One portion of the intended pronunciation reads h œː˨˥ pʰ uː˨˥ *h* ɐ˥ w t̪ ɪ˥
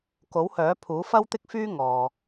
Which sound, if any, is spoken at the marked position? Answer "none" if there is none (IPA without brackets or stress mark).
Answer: f